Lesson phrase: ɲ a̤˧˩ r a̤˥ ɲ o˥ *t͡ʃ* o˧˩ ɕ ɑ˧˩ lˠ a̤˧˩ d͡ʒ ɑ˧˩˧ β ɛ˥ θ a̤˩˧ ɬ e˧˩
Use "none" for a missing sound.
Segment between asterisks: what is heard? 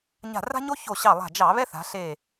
ç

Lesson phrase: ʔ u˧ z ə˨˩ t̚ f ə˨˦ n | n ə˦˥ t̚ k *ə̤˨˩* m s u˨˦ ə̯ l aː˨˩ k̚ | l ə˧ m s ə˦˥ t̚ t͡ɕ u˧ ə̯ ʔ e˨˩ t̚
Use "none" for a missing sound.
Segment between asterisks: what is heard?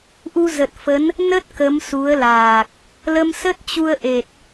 ə˨˦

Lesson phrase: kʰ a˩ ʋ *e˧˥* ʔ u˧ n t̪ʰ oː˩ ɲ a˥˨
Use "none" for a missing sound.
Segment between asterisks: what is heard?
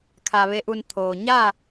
e˧˥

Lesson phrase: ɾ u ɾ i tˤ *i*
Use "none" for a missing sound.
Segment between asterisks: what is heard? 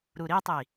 i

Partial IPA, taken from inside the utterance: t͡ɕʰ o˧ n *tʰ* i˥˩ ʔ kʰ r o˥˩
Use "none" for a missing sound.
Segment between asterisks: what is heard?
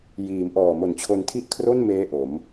tʰ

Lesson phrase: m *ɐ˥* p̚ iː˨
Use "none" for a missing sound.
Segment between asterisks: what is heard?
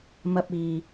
ɐ˧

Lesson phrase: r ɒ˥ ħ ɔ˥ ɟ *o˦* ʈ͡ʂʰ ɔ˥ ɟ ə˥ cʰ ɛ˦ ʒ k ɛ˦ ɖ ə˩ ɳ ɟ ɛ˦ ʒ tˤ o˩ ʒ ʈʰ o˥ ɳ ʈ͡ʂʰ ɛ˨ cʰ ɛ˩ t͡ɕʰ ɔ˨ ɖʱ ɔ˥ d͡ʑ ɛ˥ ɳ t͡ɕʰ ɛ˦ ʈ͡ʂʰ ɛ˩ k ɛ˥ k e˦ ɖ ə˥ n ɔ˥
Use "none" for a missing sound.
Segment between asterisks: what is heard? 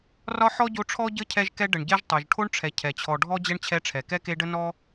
o˦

